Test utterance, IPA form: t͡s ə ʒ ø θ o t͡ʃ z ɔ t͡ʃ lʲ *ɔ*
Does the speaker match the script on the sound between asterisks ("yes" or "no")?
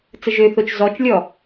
yes